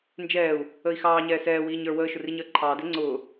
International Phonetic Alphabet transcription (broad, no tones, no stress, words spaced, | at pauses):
nd͡ʒɛːu̯ | əi̯xɑːɲɛː sɛːwiːɲ ə˞ wəːʃʊriɲəː ǃʰɑːdɛ ŋ͡ǀʊː